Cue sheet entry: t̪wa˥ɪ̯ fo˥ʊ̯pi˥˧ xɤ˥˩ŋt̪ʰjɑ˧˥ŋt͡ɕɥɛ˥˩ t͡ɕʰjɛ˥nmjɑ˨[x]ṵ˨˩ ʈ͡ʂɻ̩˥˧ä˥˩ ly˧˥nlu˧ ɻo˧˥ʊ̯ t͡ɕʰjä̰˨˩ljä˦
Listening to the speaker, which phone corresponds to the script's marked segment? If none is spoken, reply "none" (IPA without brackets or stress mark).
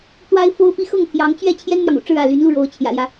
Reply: ŋ